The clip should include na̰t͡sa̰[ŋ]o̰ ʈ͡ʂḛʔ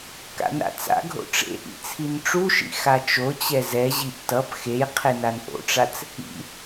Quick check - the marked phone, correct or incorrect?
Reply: incorrect